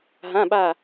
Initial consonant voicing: voiced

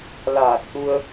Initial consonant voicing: voiced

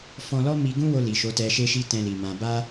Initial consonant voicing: voiceless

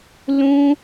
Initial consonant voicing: voiced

